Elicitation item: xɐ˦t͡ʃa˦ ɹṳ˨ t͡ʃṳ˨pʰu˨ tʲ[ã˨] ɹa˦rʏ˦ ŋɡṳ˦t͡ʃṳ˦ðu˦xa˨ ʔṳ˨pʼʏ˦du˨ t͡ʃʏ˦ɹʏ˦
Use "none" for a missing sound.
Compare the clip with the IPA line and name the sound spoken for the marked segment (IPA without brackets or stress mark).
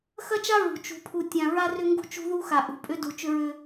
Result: ã˨